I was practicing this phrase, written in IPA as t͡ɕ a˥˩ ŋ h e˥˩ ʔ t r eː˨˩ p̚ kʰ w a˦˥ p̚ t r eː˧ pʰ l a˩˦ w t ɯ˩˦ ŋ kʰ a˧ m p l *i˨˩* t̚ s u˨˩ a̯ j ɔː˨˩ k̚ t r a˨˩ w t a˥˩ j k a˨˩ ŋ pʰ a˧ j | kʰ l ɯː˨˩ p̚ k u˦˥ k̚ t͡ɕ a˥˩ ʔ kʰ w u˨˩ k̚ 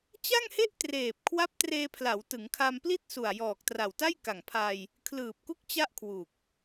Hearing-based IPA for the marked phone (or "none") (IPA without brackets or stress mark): i˥˩